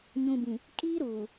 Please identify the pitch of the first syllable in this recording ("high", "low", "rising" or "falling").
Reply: low